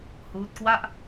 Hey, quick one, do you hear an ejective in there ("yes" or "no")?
no